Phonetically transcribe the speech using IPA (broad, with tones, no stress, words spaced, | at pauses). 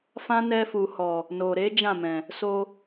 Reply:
fã˦nɛ˧fu˨hɔ˨ | no˨ɾe˨˦ d͡ʒã˦˨mɛ̃˨ | so˧